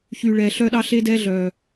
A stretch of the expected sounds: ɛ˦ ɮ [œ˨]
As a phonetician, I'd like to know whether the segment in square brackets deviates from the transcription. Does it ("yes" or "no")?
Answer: no